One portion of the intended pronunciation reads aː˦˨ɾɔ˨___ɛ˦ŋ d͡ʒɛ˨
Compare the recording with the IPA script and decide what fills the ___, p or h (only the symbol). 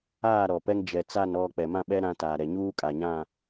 p